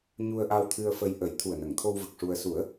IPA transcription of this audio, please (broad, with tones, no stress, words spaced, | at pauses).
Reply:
ɲu˧ə̯ʔa˧wt̪ʰɨ˧ə̯fə˧j ʔə˨˩˦j t̪ʰu˨˩ə̯nə˨˩˨ŋt̪ʰo˧wvə˨˩k̚ ʂu˧ə̯ su˨˩˦ə̯